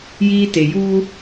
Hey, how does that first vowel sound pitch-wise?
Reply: high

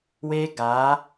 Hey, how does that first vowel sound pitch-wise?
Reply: high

